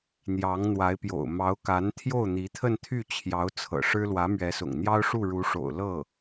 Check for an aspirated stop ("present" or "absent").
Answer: present